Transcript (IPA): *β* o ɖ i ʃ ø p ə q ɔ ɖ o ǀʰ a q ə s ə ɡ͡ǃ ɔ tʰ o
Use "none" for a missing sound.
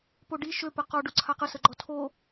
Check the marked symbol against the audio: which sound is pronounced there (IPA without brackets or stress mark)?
p